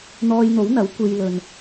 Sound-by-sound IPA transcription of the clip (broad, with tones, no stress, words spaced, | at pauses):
n̪ɔː˧jn̪o˨˥wn̪ɐ˨˥w kʷe˧jlɵ˨n